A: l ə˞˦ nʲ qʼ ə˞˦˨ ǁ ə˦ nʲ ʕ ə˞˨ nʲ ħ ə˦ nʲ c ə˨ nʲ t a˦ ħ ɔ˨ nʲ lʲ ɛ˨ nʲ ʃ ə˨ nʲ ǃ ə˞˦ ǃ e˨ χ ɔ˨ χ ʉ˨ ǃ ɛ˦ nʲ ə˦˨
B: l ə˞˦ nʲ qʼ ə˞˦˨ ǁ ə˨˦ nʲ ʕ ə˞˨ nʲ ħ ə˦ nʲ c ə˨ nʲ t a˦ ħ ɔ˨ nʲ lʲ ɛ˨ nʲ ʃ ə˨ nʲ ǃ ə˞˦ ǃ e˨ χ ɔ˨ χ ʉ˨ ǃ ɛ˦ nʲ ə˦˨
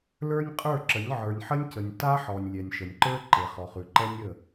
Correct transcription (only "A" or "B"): B